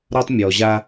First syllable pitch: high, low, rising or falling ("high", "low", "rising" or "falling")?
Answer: high